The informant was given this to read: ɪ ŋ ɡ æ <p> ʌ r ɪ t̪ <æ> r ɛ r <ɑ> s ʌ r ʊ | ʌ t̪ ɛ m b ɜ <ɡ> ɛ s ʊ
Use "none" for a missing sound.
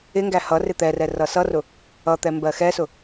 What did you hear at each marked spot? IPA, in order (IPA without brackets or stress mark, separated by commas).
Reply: h, ɛ, ʌ, x